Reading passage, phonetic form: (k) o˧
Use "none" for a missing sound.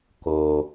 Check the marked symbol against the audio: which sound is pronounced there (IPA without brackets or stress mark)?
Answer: k